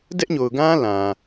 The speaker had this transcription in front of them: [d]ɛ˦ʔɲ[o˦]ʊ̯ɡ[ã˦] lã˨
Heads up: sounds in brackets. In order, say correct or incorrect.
correct, incorrect: o˨, correct

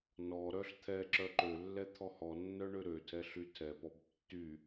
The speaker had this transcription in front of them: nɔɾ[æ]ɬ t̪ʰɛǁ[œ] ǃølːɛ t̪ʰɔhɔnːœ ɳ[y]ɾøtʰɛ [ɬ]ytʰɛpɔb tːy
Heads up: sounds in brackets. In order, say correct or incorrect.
incorrect: œ, correct, incorrect: ø, correct

